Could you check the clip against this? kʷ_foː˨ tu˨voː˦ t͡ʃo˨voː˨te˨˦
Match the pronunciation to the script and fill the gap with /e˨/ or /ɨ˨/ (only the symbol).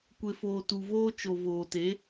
e˨